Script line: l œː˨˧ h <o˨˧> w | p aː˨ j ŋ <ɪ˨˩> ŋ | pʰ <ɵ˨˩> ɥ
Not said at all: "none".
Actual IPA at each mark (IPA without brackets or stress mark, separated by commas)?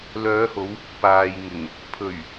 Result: o˨˧, ɪ˨˩, ɵ˨˩